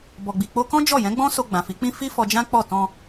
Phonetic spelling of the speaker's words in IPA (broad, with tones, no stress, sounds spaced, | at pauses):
b ɔ˨ ɡ͡b i˨ k͡p o˧ k ɔ̃˦ d͡ʒ ɔ˦˨ j ɛ̃˨˦ ɡ͡b ɔ̃˦ s o˧ ɡ͡b ã˨ f i˨˦ k͡p ĩ˦ f i˦ f ɔ˧ d͡ʒ ã˦ k͡p ɔ˦˨ t ɔ̃˧